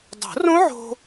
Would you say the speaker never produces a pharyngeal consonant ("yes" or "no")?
no